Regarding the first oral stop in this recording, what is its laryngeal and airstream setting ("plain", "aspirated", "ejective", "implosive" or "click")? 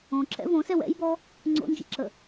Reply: click